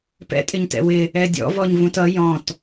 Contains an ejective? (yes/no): yes